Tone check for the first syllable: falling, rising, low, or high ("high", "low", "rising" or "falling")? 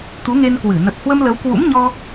rising